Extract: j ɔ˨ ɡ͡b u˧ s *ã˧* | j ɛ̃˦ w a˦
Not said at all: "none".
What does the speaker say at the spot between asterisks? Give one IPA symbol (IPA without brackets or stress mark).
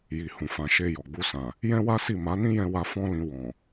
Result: ã˨